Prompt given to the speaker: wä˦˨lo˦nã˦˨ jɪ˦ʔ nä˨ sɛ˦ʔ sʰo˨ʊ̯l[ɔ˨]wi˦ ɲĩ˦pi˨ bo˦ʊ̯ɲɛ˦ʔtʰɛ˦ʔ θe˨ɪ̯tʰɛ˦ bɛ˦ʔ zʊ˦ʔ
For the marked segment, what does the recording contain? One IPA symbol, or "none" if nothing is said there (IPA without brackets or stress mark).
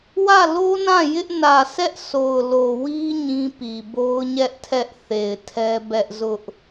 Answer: o˨